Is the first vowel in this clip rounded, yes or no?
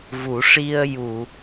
yes